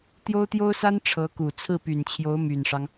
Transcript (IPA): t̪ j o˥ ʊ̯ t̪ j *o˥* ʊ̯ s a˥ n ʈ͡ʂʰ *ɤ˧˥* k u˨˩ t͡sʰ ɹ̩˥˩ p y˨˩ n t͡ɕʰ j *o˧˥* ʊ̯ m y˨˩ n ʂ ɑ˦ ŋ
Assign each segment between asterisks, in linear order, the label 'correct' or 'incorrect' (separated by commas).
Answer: correct, correct, correct